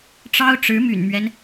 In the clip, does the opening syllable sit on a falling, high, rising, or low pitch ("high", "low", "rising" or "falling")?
high